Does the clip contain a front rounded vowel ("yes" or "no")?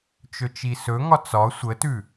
no